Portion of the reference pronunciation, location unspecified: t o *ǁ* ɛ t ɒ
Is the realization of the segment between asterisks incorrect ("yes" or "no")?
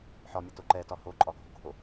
yes